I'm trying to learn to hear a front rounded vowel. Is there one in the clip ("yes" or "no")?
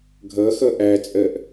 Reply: no